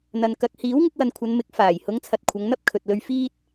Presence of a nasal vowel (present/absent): absent